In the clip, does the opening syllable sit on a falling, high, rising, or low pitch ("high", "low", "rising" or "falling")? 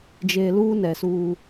low